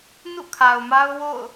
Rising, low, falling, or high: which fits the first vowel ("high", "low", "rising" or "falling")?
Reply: falling